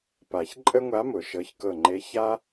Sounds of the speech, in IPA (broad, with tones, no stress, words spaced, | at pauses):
pa˨˩˦ç ǃʼə˥ŋʷa˧˥mʊ˨˩˦ ʃɤ˩˧˩çkɤ˧˩ŋ͡ǃe˧˥ ça˥